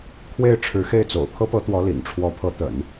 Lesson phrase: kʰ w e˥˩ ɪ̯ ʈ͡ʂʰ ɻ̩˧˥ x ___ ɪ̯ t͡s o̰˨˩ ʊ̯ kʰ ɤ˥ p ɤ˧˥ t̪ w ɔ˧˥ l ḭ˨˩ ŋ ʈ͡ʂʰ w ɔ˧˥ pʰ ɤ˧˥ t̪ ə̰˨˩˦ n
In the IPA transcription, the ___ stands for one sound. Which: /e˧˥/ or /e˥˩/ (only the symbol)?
e˥˩